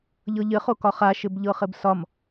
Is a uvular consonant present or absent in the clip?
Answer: present